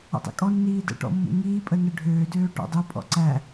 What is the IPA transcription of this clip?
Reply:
ɔ̰ tˤ ɛ̰ kʼ ɔ nː iː d ə̰ ʈ ɔ̰ mː ṵ ŋ iː pʼ ə n ɘ ɖʱ øː d øː ʈ ɔ̰ dˤ u pʼ ɔ̰ ǀ æ

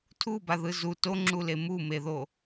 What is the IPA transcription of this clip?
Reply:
tʰ u b a ð ɯ z u t o ŋ͡ǁ u l e m u m e ð o

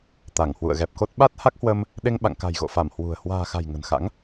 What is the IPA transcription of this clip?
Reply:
t̪ a˧˩ ŋ h w ṵ˧˨ ə̯ ɣ ɛ˨˩ p̚ k o˦˥ t̚ ɓ a˦˥ t̚ h a˦˥ k̚ h w ə˧ m | ɗ e˧ ŋ ɓ a̰˧˨ ŋ k a̤˨˩ j ɣ o̰˧˨ f a˧˩ m h w ṳ˨˩ ə̯ h w a̤ː˨˩ x a̤˨˩ j ŋ ə̤˨˩ n x a̰˧˥ ŋ

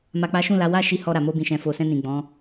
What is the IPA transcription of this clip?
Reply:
m a˨ k͡p a˨˦ ʃ ũ˦˨ l a˨˦ w a˦˨ ʃ i˨˦ h ɔ˧ ɾ a˨ m o˧ b ĩ˨ ʃ ɛ̃˨ f o˨ s ɛ̃˧ n ĩ˨ ɡ͡b ɔ̃˨˦

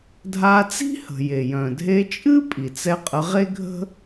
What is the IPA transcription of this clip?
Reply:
dʱ a˧ t͡s i̤˥ h ə̤˩ j e˩ j œ̃˩ dʱ e˧ t͡ʃʼ ɨ˥ pʼ i˩ t͡s ɛ˧ qʼ ə˧ ʁ e˥ ɡʱ ə̤˥

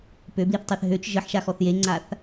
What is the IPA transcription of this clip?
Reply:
p ø b l i θ tˤ e θ ɦ ø t͡ʃ ʒ ə ħ ʃ a x ɔ θ j e ŋ͡ǀ a θ

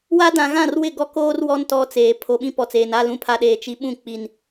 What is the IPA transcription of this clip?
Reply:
w a˦ d ã˨ ɣ ã˦˨ r w ɪ˦˨ ɡ ɔ˦ k oː˦ r w ɔ˦ n t ɔ˦ t͡s eː˨ pʰ o˨ ɓ ĩ˦ p ɔ˨ t͡s eː˨ n a˦˨ l ũ˦ pʰ a˦ ɗ eː˨ t͡ʃ i˨ ɓ ũ˦˨ k͡p i˨ n

